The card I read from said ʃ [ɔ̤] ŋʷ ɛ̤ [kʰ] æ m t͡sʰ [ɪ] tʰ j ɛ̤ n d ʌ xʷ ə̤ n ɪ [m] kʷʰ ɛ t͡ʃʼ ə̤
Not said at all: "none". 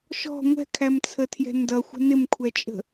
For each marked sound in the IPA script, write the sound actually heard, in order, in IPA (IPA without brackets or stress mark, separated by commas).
ɔ̤, kʰ, ə, m